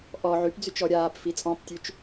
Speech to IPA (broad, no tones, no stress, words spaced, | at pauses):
ʔɔ ʕypd͡zyt͡ʃ ɔɾʲaːp fit͡sʼɔ̃ptʲʉt͡ʃ